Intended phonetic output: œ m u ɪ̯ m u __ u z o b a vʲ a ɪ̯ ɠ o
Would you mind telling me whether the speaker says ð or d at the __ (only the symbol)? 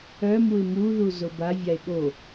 ð